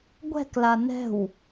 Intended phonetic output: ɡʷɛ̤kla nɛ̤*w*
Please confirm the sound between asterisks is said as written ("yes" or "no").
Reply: yes